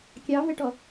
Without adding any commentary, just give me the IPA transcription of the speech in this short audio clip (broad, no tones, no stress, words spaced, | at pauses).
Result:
kʲɑvɛʈɔ